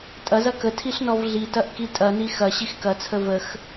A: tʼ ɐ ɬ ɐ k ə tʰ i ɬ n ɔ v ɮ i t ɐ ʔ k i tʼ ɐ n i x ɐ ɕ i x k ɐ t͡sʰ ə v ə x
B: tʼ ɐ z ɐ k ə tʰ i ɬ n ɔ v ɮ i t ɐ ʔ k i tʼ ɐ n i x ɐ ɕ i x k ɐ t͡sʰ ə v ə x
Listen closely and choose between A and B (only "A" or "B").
B